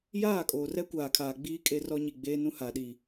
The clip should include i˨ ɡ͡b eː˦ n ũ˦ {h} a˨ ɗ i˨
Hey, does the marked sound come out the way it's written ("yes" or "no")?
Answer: yes